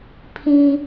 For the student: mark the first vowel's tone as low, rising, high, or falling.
high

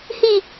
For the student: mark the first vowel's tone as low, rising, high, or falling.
falling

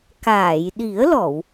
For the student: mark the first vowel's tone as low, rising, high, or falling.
low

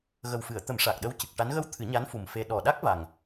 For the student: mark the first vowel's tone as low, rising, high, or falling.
low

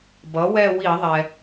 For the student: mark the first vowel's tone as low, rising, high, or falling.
rising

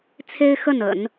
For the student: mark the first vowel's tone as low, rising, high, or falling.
high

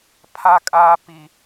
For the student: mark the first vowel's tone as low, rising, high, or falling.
high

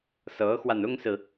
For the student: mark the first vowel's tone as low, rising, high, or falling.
rising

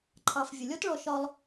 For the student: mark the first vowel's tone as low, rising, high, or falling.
low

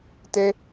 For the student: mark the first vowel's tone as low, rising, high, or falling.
high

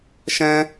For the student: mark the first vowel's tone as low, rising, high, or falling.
high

